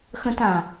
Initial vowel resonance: nasal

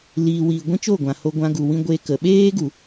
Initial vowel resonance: oral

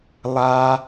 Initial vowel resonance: oral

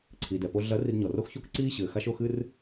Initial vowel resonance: oral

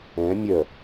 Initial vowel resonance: nasal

